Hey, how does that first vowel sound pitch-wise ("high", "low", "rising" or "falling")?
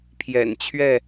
low